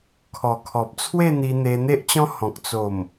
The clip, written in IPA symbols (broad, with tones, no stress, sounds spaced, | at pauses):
kʰ ɔ˨˩ kʰ ɔ˨ p̚ t͡sʰ w e˥˧ n̪ i˧ n̪ e˧ n̪ e˦ ʔ t͡ɕ ɔ̃˦ h ɔ̃˨ k̚ t͡s o˨˩ m